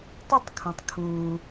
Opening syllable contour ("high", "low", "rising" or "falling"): high